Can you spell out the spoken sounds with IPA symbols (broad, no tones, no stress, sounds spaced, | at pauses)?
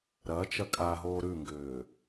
ɾ ɐ t͡ʃ ɐ kʼ a ɦ oː ɾ ʉ ŋ ɡ ʏː